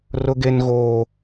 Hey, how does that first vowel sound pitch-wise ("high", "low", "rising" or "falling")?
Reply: high